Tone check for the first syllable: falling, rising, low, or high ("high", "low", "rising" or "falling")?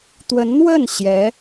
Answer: rising